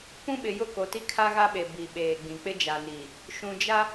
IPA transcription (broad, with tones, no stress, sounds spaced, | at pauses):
p ũ˦ ɓ ɪ˨ j ʊ˦˨ k o˨ t i˦ kʰ a˦ ɣ a˦ ɓ e˨ b i˨ ɓ eː˨ ɡ͡b ĩ˨ k͡p ɪ˦ d͡ʒ a˨ n iː˨ | ʃ ũ˨ d͡ʒ a˦